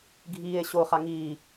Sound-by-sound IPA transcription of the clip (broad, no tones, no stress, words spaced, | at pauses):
ɡʱiːe̯ɕo χaŋiː